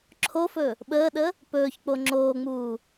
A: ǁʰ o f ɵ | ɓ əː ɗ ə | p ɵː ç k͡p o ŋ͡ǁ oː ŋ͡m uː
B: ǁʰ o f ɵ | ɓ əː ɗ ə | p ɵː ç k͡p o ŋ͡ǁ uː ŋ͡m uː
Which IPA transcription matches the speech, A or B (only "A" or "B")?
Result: A